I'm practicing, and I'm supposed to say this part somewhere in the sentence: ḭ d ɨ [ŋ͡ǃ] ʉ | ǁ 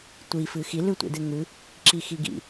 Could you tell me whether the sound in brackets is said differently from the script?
yes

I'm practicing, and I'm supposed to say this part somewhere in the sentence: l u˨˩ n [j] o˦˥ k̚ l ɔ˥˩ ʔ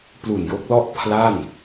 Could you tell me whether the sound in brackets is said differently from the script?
no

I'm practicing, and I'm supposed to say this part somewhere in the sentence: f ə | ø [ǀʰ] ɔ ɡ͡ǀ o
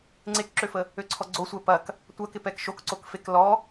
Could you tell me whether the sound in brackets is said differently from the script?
no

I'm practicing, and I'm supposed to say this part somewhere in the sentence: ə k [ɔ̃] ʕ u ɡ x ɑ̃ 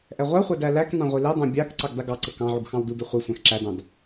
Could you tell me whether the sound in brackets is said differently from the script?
yes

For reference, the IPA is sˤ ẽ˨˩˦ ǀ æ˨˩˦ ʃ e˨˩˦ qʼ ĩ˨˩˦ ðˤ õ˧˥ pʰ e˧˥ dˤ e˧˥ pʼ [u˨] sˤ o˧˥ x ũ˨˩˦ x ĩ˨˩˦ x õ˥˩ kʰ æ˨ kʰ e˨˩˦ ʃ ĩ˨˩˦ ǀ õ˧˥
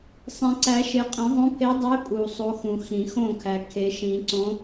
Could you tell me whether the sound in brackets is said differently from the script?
no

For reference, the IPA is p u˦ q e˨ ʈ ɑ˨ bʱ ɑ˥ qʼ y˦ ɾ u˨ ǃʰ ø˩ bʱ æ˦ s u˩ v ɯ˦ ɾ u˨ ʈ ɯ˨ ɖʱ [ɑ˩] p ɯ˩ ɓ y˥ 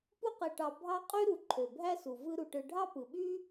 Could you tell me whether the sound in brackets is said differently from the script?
yes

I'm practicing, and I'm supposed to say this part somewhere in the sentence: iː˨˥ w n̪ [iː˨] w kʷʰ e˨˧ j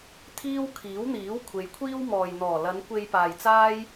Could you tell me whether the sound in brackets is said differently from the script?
yes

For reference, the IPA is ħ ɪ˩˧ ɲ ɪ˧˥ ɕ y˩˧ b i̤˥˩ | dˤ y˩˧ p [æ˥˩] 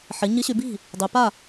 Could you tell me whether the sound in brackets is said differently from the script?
yes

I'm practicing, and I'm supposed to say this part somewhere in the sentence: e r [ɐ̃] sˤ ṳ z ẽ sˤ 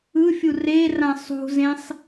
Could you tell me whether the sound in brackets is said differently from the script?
yes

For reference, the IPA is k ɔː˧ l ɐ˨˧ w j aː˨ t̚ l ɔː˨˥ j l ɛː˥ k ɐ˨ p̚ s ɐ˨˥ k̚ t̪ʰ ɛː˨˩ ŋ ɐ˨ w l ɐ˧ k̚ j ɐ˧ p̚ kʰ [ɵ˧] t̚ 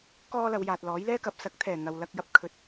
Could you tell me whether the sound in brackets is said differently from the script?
yes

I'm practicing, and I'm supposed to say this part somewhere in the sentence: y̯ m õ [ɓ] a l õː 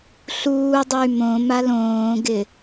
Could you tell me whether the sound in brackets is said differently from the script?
yes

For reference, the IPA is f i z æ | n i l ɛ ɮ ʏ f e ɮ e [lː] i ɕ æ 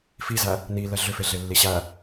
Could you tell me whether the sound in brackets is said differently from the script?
no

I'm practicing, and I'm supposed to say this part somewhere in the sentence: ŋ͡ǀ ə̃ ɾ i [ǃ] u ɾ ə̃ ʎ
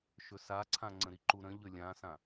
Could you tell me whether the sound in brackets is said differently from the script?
no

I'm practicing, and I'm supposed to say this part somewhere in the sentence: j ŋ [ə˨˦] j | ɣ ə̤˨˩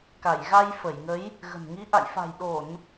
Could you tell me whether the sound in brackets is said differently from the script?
no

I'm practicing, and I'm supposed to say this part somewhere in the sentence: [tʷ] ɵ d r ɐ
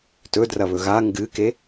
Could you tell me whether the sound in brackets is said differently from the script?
yes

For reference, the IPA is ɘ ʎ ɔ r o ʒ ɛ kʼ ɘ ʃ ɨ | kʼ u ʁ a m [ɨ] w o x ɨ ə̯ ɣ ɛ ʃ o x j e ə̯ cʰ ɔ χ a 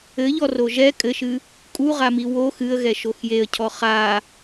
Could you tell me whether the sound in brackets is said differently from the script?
yes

